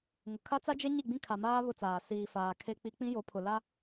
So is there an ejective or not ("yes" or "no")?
no